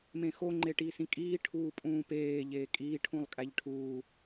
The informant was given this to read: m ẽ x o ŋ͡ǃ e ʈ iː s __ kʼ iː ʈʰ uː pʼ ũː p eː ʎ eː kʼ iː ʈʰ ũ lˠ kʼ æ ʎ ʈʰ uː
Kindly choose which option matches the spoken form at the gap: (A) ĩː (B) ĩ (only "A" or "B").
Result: B